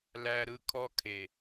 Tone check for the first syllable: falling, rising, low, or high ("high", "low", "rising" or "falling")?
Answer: high